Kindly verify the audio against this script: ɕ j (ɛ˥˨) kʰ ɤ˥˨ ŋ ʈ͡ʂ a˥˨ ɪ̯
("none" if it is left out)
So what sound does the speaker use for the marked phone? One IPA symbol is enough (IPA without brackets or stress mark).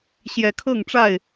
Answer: ɛ˨˦